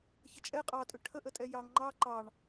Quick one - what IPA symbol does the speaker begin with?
ç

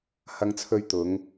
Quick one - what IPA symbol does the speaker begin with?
h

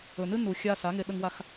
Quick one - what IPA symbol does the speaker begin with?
ɵ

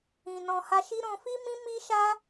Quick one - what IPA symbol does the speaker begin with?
ĩ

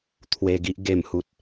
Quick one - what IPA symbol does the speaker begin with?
t̪ʰ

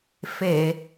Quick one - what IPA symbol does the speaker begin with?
f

